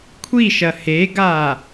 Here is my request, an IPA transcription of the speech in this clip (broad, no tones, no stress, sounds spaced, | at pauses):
kʷʰ i ʃ ɐ h e ɡ a